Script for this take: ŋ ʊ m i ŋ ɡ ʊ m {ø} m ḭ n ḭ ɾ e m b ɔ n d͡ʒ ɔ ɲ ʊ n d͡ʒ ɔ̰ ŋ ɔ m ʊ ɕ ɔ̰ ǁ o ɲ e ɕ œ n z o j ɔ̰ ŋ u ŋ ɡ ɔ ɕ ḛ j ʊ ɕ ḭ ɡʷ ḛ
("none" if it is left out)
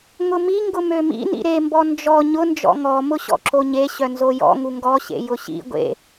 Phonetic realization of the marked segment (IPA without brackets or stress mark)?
ø